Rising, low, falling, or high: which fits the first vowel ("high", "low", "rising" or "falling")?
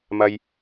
low